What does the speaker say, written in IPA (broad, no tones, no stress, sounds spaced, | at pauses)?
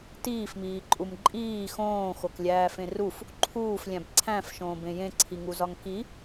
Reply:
t iː f m iː ǃʼ u m ǃʼ iː x õː x o k lʲ æː f ẽ r u f | ǃʰ uː f lʲ æ̃ b ǀʰ æ̃ f ʃ õː b ẽ j ẽ ǀʰ i ŋ u z ɒ ŋ k i